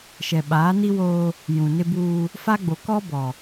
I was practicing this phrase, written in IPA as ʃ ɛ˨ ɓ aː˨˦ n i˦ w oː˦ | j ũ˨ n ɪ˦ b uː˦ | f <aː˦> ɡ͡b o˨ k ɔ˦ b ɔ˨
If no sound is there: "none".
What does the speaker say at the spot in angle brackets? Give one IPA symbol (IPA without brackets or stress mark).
a˦